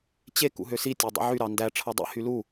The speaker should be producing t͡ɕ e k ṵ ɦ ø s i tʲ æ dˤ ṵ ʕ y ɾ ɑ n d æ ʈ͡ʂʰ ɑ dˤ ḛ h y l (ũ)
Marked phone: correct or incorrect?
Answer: incorrect